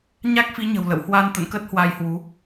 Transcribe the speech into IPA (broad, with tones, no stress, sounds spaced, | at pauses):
ɲ a˦˥ k̚ f i˨˦ ɲ ə̤˨˩ w l ə̰˧˨ w h w a˧ n t̪ ə̰˧˨ n k ə˦˥ t̚ h w a˧ j h w u˨˦